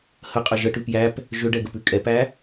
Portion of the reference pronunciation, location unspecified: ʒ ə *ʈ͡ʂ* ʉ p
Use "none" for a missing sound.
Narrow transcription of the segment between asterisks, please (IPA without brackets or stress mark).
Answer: ʈ